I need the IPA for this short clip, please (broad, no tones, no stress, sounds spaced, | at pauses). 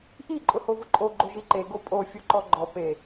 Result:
ʔ i ǃʼ ʊ h o v ʊ ǃʼ o ɡ͡ǃ o ʒ i ǃ e ɡ o pʼ o fʲ o ǃ ɔ ɡ͡ǃ ɔ p e